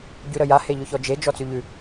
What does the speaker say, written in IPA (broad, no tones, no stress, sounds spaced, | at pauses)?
ɟ ʉ ɾ ə j a h e ʎ ʊ ç ɔ d͡ʒ e d͡ʒ ɔ t͡s ʉ ʎ ʉ